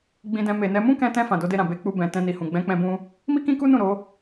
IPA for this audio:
ɡ͡b ĩ˧ d ɛ̃˧ m e˨ n ɛ˨˦ m ũ˦ k ɛ̃˧ t ɛ̃˧ f ã˨ d o˨˦ d e˧ ɾ ã˨ b e˧ k͡p u˧ b ɛ̃˨ t ɛ̃˧ n i˨ h ũ˨ ɡ͡b ɛ̃˨˦ k͡p ɛ̃˧ b ũ˧ | m i˦ k ĩ˦ k u˦ n ũ˦˨ ɾ o˨˦

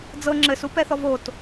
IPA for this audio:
d͡z ɤ ŋ͡ǁ ɘ s u p ɛ θ ɔ v o t

